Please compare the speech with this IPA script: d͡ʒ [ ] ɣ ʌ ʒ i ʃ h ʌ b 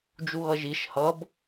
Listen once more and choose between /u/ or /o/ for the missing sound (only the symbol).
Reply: u